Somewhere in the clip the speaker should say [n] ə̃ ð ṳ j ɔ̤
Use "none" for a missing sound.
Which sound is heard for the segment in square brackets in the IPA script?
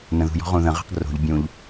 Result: n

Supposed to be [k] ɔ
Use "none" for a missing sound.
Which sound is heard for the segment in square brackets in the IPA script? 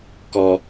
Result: k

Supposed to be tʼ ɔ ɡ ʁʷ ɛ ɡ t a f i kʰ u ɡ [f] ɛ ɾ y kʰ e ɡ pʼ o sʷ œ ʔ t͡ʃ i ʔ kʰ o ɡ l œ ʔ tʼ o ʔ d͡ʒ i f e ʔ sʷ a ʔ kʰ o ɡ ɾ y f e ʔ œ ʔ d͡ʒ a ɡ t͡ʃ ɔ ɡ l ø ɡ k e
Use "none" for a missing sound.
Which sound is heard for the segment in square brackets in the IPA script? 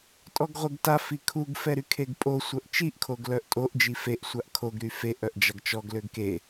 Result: f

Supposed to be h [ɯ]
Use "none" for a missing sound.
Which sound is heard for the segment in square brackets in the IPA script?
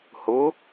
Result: ʊ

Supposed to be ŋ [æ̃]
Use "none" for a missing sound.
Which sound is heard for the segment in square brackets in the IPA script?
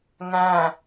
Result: æ̃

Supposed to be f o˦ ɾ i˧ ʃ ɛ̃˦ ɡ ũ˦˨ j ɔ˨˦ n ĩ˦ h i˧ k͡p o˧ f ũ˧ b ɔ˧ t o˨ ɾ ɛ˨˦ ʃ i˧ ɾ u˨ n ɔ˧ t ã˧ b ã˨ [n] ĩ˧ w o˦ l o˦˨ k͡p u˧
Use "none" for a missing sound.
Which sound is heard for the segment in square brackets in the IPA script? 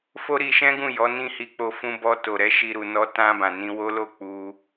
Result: n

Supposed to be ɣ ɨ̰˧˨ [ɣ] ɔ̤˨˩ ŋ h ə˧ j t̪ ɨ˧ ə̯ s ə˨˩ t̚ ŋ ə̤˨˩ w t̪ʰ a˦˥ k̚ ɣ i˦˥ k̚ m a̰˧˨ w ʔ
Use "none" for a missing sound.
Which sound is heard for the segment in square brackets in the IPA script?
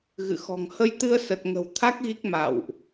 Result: x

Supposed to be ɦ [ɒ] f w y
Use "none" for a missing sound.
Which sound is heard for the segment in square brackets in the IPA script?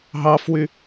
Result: ɑ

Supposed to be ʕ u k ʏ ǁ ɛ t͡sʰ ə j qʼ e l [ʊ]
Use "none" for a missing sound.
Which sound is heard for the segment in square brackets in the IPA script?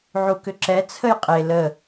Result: ə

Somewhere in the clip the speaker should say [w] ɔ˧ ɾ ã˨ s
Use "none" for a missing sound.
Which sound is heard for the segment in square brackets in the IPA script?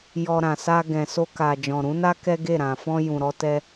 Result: j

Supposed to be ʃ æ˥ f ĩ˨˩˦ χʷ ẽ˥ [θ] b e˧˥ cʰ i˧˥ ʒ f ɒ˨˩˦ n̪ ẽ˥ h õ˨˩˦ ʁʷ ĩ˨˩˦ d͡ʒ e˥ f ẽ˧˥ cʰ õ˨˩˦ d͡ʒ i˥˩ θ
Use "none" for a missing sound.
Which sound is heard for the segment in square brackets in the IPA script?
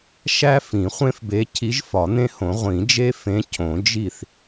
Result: f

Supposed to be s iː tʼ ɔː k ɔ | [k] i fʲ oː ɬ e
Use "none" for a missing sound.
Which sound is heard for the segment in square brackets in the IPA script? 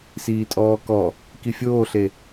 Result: k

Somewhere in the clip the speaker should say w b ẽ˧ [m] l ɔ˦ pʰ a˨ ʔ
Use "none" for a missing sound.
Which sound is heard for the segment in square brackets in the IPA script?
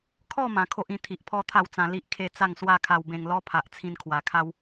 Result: ŋ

